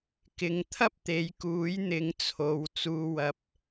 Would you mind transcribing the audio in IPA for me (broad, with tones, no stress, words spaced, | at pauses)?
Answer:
kɪ˨˧ŋ t̪ʰɐ˥p̚t̪e˨˧jkuː˨˥j n̪ɪ˨˧ŋt͡sʰo˨w t͡suː˧wɐ˧p̚